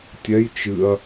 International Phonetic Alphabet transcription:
tʲ ɛ j t͡ʃ ɨ ɐ̯

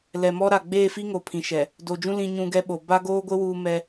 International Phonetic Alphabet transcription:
l ɛ˨ m ɔ˦ ɾ a˨ ɡ͡b eː˦˨ f i˦ ŋ o˨ pʰ ĩ˨ ʃ ɛ˨ | d o˨ d͡ʒ ũ˦ l ĩ˦ ɲ ũ˦ ɡ ɛ˦ ɓ o˨ b a˦ ɡ oː˦ ɡʷ ɪ˦ w uː˦ m ɛ˦

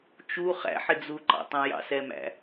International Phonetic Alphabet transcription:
t͡ʃ u χ æ̰ ħ ɪ d͡z u ǃ ɑ̰ tˤ æ̃ j ɑ̰ s ɛ m æ̰

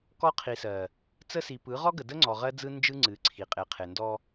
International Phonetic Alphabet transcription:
k ɔ˦ qʰ i˨ s ɜ˨ | t͡s ə˦ s i˨ p ɯ˨˦ ʁ ɔ˦ ɡ ə˨ d ə˦ ŋ͡ǀ ɔ˨ ʁ ɜ˦ d͡z ɯ˦ n d͡ʒ ɯ˦ ŋ͡ǀ ɨ˨˦ ǀʰ i˨ qʼ e˨ qʰ e˨ n d ɔ˦

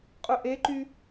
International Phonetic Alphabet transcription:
qʼ ʊ ʔ e ǃ y

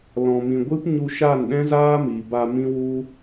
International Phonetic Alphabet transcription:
l ɔ̃˨ m ĩ˨ ɡʷ ɨ˦ p ɲ u˧ ʃ a˦˨ n ɗ ɛ̃˦ z aː˦ m i˨ b a˧ m ĩ˦ w u˦

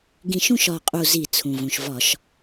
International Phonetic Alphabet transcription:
ɡ ĩ˧˩ ʃ ũ˥˧ ʃ ɒ˧˩ qʼ u˧˩ z i˧˩˧ t͡sʰ ũ˩ v ũ˩ ʃ v ɒ˧˩˧ ʃ

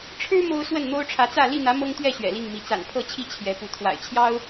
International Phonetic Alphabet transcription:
ʈ͡ʂʰ ɻ̩˦ m o˦ ʊ̯ s w ə˥˨ n n̪ o˦ ʊ̯ ʈ͡ʂʰ ä˨˦ t͡s ä˥˨ l i˥˨ n̪ ä˨˦ m ɤ˦ ŋ t̪ ɥ ɛ˥˨ ɕ ɥ ɛ̰˨˩ l i˥˨ ŋ m i˨˦ t͡s a̰˨˩ n pʰ ɤ˥˨ t͡ɕʰ i˥˨ t͡ɕʰ j ɛ˨˦ p u˨˦ t̪ʰ w a̰˨˩ ɪ̯ t͡ɕʰ j ɑ˦ ʊ̯

